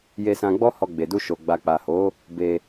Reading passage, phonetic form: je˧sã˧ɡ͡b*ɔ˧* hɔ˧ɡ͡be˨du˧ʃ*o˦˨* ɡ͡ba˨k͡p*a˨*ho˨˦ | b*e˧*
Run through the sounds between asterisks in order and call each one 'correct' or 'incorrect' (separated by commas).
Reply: incorrect, incorrect, correct, correct